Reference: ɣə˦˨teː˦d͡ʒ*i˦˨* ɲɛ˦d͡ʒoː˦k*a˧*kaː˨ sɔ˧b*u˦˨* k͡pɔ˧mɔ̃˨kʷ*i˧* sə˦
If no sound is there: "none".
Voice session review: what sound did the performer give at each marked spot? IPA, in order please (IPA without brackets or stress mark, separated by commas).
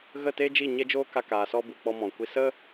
i˦˨, a˧, u˨, i˧